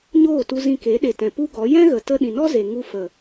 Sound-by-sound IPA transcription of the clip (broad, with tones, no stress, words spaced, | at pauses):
ɲoː˦˨tu˧ zĩ˧ ke˨˦ɗe˨tɛ̃˨ pu˦ɡɔ˨˦ jɛ̃˦ɣə˨ tə˧ ɗĩ˨nɔ˦ ze˨ ŋu˧ fə˨